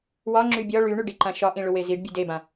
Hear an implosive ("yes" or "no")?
no